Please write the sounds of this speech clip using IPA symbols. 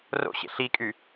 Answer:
r o̰ ɕ ḛ ɬ i kʼ y

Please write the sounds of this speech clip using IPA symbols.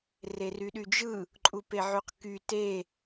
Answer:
r e r y ɗ y d͡ʒ ɯ | ǃʼ u p e ʕ y q k y t e

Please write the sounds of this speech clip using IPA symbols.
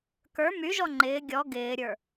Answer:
k ə˞ m y ʒ ɔ ŋ͡ǃ ɪː ɡʲ ɔ ɡ ɪː ɾʲ ə˞

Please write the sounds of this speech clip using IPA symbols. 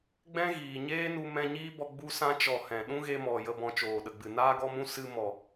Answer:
ɡ͡b ɛ̃˦ ɣ iː˨ ɲ eː˦ n u˧ m ɛ̃˧ ɲ iː˦ b ɔ˧ ɡ͡b u˧ s ã˧ t͡ʃ ɔ˨ h ɛ̃˨ ɗ ũ˦ ɣ e˧ m ɔ˨ j ə˨ b ɔ̃˨ t͡ʃ oː˨ ɗ ə˨ ɡ͡b ɨ˨ n aː˧ ɡ ɔ˧ m ũ˧ s ɨ˧ m ɔ˨

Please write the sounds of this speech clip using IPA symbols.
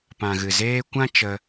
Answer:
p ã˨ ɣ ɨ˨ z eː˧ kʷ ã˦ t͡ʃ ə˧

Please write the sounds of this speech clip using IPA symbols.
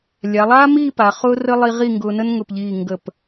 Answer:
lʲ a˩˧ lˠ aː˥ m iː˥˧ p a˩˧ χ ʊː˥ r ə˥ lˠ i˧ ʁ i˥˧ ŋ ɡ ʊː˧ n ə˥ n ŋ ʊ˧˩ p ʎ iː˧˩ ŋ ɡ ə˧˩ p

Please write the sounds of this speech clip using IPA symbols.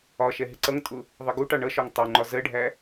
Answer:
ɒ ʃ ɛ ɦ ɪ ǀ ʌ ŋ tʼ ʊ | ðˤ ə ɡ u ʈ ɑ ɳ ʌ ʃ ɒ ŋ tˤ u ŋ͡ǃ ɒ z ɜ ɖʱ æ

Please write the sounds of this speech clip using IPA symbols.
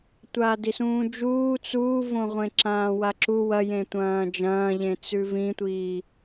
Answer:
tʷ aː d i s ũː d͡ʒ uː t͡s uː v õ ʁʷ ẽ ǁ ãː w a ǁ u w ɐ j ẽ tʷ ɐ̃ː d͡ʒ ɐ̃ː ʎ ẽ t͡s ʉ v ĩ tʷ iː

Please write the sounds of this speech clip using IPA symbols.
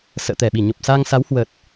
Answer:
s ə̰ː˧˨ t̪ ɛ˧˩ ɓ i˧˩ ɲ o˨˩ p̚ s a˧ ŋ s a˨˦ w h w ə˨˩ t̚

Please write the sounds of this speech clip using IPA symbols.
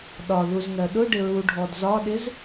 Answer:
ɗ ɒ ð u z ŋ ɜ ɗ ʊ ɖ ɪ ɹ u ɖʱ ɔ d z ɒ ɗ ɪ z

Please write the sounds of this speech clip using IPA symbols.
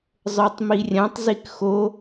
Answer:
zˤ ə˞ tˤ m i rʲ ã tˤ z i k x o

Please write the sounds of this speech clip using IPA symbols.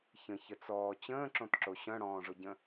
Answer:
ç ə̃ ç ə t͡s ɔː t͡ɕ ə̃ː ǁ õ t ǁ o ɕ œ̃ ɽ ɔ̃ː ʐ ʊ ɟ ə̃

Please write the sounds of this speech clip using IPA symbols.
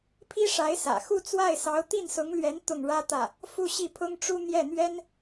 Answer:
pʰ i˥ ʂ a˧˥ ɪ̯ s ä̰˨˩ x u˥˧ t͡s w a˥˩ ɪ̯ s ɑ˧˥ ʊ̯ t̪ i˥˩ n s ʊ˧˥ ŋ l ɥ ɛ˧˥ n t̪ ʊ˥˩ ŋ ɻ ä˥ t̪ ä˥˩ | f u˥˧ ɕ i˥˩ pʰ ʊ˥ ŋ ʈ͡ʂ u˥ n̪ j ɛ˥˩ n̪ ɥ ɛ˥ n

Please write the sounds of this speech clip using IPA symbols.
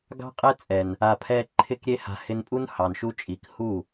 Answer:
ɡ ɑ̤˦ qʼ ɛ˦ t͡sʼ ɛ˨ n | a˨ pʰ ɛ˧ ǃʰ ɪ˧ k ɾʲ e˧ h a̤˨ h ɪ˧ n pʼ u˦ n h ɑ˨ n ʃ u˧ t͡ʃʼ i˨ k h u˦˨

